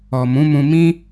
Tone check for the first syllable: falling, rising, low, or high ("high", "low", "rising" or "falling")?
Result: low